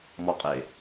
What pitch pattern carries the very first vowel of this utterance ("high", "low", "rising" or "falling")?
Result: high